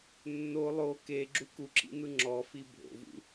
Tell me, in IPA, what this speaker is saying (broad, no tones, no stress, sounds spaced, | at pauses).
nː o lˠ o k e ɡ͡ǁ u k u ǁ ḭ n̪ ɯ ŋ͡ǁ ɔ f i bʱ o̰ v ṵ